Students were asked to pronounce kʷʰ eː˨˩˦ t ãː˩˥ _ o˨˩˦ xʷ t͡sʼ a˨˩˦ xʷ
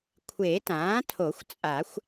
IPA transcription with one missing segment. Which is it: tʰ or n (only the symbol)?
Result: tʰ